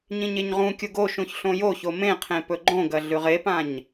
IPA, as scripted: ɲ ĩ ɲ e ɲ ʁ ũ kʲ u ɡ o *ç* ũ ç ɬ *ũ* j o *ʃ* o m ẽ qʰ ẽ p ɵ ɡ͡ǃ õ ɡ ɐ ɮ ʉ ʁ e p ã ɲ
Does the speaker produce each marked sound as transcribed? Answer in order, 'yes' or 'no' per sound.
no, no, no

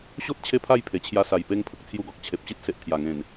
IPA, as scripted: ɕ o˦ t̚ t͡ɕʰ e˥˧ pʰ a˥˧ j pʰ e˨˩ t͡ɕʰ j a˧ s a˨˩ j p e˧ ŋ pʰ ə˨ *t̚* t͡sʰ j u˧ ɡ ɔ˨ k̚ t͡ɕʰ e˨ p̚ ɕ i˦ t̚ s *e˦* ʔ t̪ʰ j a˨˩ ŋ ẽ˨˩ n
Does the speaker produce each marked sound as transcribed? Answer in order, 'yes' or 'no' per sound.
no, no

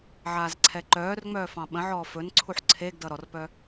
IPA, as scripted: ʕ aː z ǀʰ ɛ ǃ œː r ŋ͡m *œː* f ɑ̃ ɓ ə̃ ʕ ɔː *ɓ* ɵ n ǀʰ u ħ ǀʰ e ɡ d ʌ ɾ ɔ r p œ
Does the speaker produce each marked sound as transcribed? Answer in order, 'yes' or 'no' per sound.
yes, no

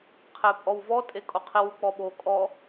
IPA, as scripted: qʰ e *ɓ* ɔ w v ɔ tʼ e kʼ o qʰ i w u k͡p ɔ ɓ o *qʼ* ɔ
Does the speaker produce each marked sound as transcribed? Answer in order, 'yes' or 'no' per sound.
no, no

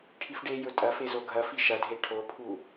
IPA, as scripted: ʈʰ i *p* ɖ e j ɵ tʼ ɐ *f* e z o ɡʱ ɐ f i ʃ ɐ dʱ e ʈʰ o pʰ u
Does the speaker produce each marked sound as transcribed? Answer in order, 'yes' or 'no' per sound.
no, yes

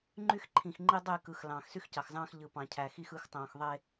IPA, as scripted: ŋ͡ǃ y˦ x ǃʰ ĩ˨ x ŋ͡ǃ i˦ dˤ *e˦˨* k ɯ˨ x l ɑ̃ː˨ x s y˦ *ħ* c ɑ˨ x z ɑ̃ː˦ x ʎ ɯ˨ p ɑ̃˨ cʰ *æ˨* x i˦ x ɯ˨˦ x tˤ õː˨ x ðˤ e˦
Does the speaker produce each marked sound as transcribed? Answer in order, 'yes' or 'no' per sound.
yes, no, yes

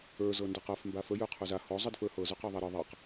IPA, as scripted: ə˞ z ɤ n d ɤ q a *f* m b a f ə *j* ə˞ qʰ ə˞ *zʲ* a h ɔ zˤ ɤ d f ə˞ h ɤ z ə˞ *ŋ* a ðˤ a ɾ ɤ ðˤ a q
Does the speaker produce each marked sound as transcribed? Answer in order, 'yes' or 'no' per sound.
yes, yes, no, no

